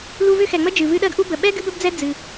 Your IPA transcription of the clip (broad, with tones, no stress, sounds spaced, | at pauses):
l u˦ v ʏ˥ x ɛ˨ ŋ͡m ə˥ d͡ʒ ɨ˩ v ɨ˦ ɗ ɜ˥ ɡ ʔ u˥ b ə˩ ɓ ɛ˥ ɡ ɨ˦ b ə˦ b d͡z ɛ˦ d͡z ɨ˩